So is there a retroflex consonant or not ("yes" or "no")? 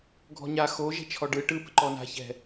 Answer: yes